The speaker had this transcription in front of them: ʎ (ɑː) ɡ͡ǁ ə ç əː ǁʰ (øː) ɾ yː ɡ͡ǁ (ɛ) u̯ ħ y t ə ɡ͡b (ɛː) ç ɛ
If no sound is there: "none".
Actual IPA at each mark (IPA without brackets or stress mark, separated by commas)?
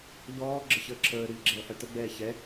ɔː, əː, ɛ, ɛː